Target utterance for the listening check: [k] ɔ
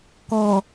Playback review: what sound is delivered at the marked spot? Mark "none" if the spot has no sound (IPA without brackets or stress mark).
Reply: k